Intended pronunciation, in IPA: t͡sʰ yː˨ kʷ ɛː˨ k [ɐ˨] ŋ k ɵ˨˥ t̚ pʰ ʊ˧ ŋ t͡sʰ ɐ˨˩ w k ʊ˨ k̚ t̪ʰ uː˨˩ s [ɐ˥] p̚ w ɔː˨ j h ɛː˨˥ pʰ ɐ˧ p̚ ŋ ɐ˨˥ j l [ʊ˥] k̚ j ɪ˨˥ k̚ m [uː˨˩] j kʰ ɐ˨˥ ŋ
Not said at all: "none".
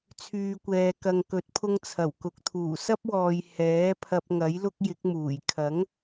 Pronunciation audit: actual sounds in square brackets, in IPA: ɐ˨, ɐ˥, ʊ˥, uː˨˩

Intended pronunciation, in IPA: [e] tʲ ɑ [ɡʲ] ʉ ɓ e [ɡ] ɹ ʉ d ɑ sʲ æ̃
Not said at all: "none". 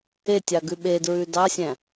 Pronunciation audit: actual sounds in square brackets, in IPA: e, ɡ, d

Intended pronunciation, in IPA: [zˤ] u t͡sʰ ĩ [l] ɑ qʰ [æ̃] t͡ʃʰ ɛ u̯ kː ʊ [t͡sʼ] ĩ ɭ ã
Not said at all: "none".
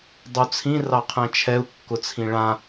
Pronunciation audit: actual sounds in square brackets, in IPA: dˤ, r, ɛ̃, t͡sʰ

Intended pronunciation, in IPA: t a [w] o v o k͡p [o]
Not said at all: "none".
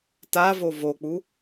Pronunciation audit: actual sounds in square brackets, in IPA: v, u

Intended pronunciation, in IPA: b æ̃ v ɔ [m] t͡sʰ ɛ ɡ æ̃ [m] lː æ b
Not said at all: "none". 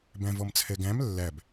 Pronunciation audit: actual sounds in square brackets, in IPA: m, m

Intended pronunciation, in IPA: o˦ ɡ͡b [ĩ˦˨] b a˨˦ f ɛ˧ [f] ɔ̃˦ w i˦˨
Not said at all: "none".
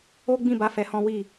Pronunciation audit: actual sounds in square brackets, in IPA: ĩ˦˨, h

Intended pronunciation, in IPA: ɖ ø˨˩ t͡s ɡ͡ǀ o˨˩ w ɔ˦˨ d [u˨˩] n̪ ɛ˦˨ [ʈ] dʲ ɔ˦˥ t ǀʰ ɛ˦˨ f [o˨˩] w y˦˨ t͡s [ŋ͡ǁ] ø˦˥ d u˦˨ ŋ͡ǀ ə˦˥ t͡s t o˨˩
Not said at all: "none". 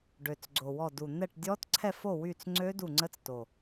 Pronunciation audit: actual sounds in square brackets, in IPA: u˨˩, ʈ, o˦˨, ŋ͡ǀ

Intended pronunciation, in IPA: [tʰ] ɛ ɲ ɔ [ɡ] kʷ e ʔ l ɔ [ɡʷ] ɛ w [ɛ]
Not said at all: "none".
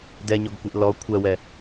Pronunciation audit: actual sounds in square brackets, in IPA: d, ɡ, kʷʰ, ɛ

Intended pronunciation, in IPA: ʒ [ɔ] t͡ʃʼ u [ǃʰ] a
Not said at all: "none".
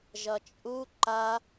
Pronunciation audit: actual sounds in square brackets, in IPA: ʌ, ǃ

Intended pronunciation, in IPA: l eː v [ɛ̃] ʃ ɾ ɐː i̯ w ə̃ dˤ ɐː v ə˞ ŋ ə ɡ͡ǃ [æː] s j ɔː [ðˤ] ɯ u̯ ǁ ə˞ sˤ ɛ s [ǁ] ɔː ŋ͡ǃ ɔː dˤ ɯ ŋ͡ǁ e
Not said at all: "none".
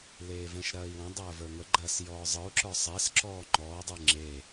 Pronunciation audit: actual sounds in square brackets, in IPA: ɛ̃, ɐː, zˤ, ǁ

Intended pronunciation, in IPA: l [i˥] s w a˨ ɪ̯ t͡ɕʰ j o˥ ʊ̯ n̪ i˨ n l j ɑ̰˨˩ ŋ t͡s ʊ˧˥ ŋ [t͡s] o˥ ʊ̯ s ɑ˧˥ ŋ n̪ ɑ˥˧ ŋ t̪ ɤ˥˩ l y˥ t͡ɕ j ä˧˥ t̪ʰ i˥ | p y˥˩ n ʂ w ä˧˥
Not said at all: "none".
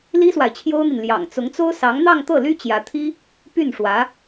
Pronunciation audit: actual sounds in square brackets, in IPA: i˥, t͡s

